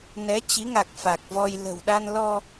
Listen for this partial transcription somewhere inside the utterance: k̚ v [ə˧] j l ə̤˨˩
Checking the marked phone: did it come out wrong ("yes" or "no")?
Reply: yes